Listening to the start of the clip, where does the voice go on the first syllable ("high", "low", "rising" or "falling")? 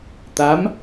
rising